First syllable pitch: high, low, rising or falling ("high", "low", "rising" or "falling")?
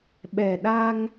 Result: low